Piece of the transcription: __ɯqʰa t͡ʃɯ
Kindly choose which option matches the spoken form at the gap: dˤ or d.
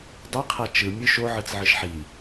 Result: dˤ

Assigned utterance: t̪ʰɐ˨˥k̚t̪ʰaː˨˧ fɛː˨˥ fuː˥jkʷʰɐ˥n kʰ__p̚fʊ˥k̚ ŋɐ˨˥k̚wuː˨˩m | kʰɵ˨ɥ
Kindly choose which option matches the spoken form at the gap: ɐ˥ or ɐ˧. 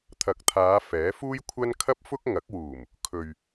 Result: ɐ˥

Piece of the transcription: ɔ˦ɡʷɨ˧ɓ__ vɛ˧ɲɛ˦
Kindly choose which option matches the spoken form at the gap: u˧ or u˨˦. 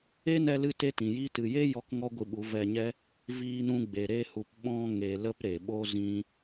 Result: u˨˦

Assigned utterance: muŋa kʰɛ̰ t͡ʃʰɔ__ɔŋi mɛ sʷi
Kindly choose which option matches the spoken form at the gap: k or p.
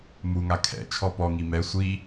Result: p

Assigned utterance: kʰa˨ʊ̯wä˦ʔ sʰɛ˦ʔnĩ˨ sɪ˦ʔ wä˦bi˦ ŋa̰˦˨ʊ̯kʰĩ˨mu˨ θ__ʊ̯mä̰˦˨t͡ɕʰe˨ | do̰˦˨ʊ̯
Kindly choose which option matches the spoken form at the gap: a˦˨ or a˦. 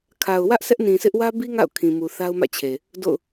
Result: a˦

